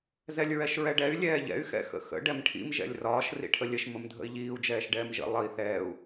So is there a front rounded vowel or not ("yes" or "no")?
yes